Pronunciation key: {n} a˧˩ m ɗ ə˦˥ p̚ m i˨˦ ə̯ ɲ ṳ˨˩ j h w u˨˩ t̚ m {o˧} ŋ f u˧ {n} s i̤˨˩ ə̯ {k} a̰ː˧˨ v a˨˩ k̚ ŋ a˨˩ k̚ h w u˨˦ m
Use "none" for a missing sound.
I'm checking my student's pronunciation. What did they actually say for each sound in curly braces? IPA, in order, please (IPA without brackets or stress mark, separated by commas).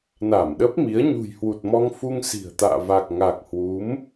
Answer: n, ɔ˧, ŋ, t̪